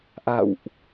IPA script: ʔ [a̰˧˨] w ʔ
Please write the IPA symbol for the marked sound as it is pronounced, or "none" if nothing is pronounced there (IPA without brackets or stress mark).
a̰˧˨